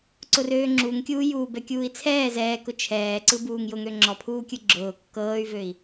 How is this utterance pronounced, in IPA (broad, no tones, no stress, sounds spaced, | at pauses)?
ǀ ʊ r øː ŋ͡ǁ u ŋ kʲ uː j uː b ɛ kʲ uː i̯ t͡sʰ ɛː z ɛː k ʊ t͡ʃʰ ɛː ǀ ɯ b uː ŋ j ʊ ŋ ø ŋ͡ǁ ɔ pʰ uː kʲ ɯ ɡ͡ǁ ʊː kː ɤː y̯ v ø i̯